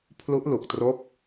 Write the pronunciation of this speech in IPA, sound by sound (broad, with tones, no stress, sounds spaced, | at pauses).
pʰ l u˦˥ ʔ l u˨˩ k̚ t r o˦˥ k̚